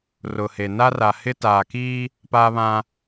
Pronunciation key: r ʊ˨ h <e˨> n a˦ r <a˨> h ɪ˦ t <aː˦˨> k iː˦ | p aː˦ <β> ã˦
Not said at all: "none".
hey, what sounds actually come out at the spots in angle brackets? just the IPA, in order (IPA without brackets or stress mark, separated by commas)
e˨, a˨, aː˨, β